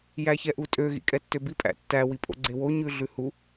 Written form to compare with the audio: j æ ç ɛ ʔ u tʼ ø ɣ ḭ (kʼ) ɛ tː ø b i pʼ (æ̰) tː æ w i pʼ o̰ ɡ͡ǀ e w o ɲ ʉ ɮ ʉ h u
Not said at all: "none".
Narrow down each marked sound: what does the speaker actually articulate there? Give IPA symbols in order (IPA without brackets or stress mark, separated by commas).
kʼ, æ̰